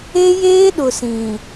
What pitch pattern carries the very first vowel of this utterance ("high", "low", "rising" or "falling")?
high